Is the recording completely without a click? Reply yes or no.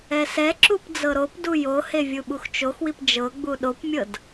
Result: no